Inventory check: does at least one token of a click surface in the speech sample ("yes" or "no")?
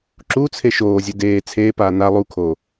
yes